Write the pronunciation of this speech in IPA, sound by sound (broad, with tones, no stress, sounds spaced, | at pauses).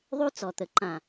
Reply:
ðˤ ʉ˦ t͡s ɔ˨ t̪ ə˨ ǃ ã˨